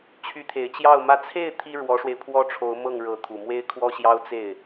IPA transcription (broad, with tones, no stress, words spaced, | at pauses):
t͡ɕʰy˧˥t̪ʰe˨˩ɪ̯ t͡ɕjɑ˥˩ʊ̯mä˥ t͡sʰe˥˩ɪ̯ t̪ʰi˥ ɻwɔ˧˥ʂwe˧ɪ̯pʰwɔ˥ʈ͡ʂʰo˧˥ʊ̯ mɤ˥˩ŋɻɤ˧˥ t̪ʰu˨˩mwe˥ɪ̯kʰwɔ˥ɕjɑ˥ʊ̯ t͡se˥˩ɪ̯